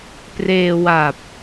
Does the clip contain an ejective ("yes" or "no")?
no